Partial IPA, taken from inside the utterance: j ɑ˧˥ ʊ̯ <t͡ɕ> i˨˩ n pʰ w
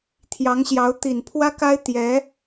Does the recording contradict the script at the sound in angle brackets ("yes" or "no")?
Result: yes